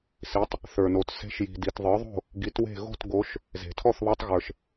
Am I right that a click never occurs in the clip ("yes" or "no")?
yes